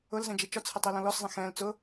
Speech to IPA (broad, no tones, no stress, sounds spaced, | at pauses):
ʊ l z ɛ̃ d͡ʒ i t͡ʃ ɔ t͡sʰ ɪ tˤ i l ɔ̃ l ɔ s zˤ ɛ̃ x ɛ̃ l t͡s ʊ